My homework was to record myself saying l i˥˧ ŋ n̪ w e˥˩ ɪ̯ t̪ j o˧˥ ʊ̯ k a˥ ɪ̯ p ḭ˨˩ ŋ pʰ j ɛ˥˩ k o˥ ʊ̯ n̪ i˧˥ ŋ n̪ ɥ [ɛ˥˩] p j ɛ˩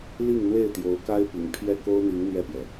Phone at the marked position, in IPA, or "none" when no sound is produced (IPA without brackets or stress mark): ɛ˥˩